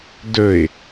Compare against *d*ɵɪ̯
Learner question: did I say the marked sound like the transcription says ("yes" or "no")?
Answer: yes